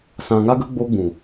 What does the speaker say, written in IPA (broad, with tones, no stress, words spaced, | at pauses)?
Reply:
sã˨ŋa˧ɡə˧ ɡ͡bo˧ɡ͡bũ˨